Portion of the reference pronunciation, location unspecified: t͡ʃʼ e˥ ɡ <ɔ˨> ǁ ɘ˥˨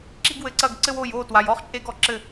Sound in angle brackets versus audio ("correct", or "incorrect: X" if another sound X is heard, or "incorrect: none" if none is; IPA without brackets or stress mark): correct